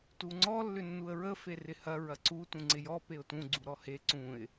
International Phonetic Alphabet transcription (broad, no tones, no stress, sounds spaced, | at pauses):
t u ŋ͡ǀ ɔ lː ʏ nː u ə̯ ɹ ə f e r ɪ h ɐ ɹ ɐ ǀ u t ũ ŋ͡ǀ ɪ j ɔ p e ʊ̯ t ũ ɡ͡ǀ u ɾ ɔ h e ǀ ũ ɪ̯